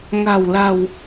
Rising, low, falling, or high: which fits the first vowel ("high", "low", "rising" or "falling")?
low